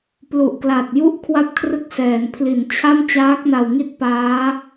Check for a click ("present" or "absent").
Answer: absent